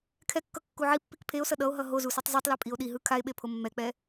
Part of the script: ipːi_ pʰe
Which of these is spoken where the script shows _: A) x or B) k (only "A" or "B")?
B